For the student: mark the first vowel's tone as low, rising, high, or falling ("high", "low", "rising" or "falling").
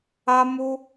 high